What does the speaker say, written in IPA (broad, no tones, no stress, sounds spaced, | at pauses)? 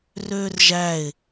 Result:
r øː r ʒ æ ɪ̯